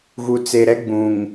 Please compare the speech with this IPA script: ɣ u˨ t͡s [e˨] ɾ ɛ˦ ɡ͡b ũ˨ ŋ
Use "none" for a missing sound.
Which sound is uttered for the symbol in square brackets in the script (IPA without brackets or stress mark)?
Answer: e˨